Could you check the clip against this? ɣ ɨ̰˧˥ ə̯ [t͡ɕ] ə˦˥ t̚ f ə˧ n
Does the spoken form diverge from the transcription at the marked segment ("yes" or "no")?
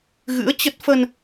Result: no